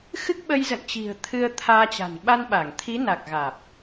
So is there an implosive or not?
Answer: yes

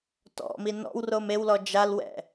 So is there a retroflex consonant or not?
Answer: no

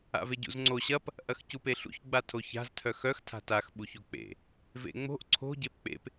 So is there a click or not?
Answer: yes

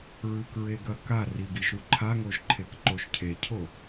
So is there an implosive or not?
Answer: no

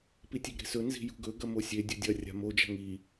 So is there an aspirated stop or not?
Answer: no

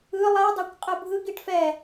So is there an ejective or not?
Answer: yes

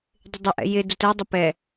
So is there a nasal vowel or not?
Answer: no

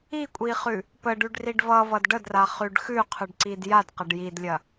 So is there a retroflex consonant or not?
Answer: yes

